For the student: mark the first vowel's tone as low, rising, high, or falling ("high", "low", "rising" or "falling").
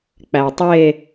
low